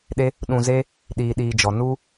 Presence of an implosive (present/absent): present